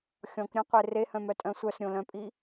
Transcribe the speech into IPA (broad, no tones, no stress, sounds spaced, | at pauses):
xʲ ɔ̃ k ɾʲ œ̃ qʷ e r e h œ̃ m œ tʼ œ̃ sʷ œ s ɾʲ õ l œ̃ pʼ i